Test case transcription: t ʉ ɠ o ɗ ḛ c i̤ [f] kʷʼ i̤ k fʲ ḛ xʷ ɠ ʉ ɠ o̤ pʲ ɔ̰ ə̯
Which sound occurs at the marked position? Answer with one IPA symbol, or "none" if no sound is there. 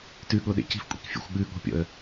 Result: f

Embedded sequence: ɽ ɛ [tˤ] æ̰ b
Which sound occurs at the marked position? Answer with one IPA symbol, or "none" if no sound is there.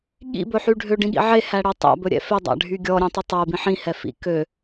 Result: tˤ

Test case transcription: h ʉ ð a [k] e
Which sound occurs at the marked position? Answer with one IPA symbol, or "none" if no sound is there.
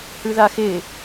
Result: x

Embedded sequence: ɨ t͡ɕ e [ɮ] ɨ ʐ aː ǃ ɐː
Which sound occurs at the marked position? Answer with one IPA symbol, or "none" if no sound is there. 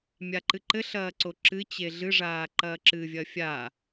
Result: ɮ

